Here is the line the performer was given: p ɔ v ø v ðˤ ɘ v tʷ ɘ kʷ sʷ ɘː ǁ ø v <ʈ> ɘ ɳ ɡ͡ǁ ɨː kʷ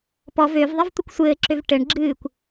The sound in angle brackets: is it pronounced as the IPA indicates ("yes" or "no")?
yes